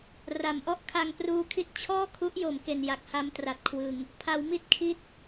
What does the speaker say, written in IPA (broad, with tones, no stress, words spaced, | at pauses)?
ra˩˦mʔɔ˥˩ʔ kʰa˧ŋpruː˦˥kʰi˦˥t̚ t͡ɕʰɔː˥˩kʰu˦˥ʔjo˩˦m ke˨˩n ja˨˩k̚ha˦˥mtra˨˩t̚kʰwɯ˨˩ŋ | pʰa˩˦wmi˦˥t̚kʰi˦˥t̚